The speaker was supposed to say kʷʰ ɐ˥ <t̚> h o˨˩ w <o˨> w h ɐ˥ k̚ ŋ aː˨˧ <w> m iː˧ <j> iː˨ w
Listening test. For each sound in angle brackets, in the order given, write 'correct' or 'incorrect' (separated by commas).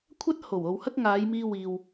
correct, correct, incorrect, incorrect